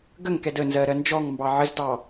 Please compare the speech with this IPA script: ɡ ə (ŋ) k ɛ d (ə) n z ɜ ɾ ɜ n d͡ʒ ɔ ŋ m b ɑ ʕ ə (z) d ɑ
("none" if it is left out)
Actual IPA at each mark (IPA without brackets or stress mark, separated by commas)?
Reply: ŋ, ə, z